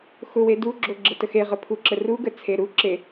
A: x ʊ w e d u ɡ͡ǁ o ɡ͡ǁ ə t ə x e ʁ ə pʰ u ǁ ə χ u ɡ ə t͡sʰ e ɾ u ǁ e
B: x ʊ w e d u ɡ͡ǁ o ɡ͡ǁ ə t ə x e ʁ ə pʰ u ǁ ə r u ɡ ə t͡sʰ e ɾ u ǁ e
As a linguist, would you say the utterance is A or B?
B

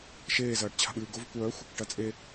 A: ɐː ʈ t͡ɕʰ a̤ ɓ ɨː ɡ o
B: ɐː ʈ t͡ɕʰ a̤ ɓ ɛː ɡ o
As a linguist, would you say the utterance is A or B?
A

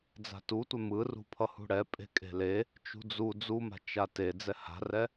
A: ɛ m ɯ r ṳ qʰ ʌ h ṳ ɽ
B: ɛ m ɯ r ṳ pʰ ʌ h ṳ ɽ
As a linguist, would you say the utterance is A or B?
B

